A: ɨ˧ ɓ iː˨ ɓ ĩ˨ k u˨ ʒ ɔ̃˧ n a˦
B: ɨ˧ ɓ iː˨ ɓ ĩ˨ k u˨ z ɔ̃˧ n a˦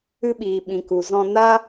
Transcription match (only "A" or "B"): B